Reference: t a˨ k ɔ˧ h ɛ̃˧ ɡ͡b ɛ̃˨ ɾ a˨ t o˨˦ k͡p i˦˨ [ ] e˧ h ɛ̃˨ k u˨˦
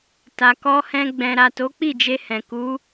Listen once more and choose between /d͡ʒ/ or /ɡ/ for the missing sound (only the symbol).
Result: d͡ʒ